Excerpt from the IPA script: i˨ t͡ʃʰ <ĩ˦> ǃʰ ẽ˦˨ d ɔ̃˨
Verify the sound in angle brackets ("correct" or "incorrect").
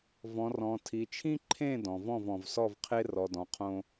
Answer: correct